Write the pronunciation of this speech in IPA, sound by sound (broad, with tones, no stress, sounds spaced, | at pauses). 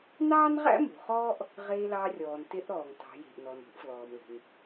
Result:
n ɑː˥ n ʁ æ̰˥ m ṳ˩˧ χ ɔː˥ ʔ | ʁ e˧ l ɑ˧ rʲ ɔː˩ n t e˧˥ ʔ ɾ ɔː˩ ŋ t ɑ̤˩˧ j e̤˩ ʔ n ɔ˩ n ṳ˧˥ ʔ f l ɔː˩ m l e̤˩ n